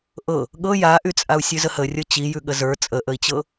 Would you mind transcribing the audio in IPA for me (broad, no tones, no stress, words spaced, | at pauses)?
ʔɤ | ɠɤ jaʔyt͡sʼau̯ sʲʉzəhərʲɤ t͡ɕijʉɠə zə˞ t͡sʼəʔəi̯t͡ɕɤ